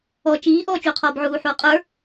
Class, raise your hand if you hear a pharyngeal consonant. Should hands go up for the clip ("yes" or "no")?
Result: yes